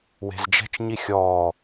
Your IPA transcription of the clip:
we̤zd͡ʒɛ̤t͡ʃɲi xʲɔː

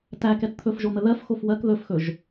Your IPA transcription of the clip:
tækɛt t̪ʰɵfʒon̪ə ðɜfxof wɜk ðɵfxɵʒ

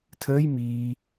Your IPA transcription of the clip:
tʰəːj miː

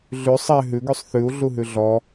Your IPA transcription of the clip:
ɮʉ sˤɛ ɦʉɡʉsˤ θʉu̯ɮuɦʉ ɮɔ

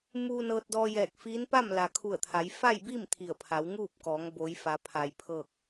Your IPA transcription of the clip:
muː˧ nɤː˧t̚dɔː˧jɛː˧˩k̚fiː˧˥n pa˥˨mla˩kʰu˧˩ə̯ t̪ʰa˩˧j fa˥˨jbi˥˨m t̪ʰi˧˩ə̯pʰa˩˧wŋuː˥˨p̚kɔː˩˧ŋ bo˩˧jfa˩˧ pʰa˩j pʰɤː˧˩k̚

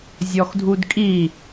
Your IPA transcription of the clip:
zʲɔxdʱudkʼi

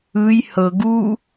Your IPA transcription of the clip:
ɯj hɤ ɡu

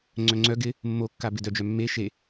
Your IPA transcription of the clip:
ŋ͡ǀœŋ͡ǀœ ɡɪ | mːokːa bɪdœ d͡ʒœmːe ʃe

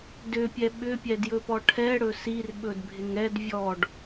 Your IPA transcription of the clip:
dʏpʲɛ ɓʏpʲɛdjɵpɔ ʈʰɛɽɵ sirɓɵdbʱɪŋ ɛd vʲɔɖ

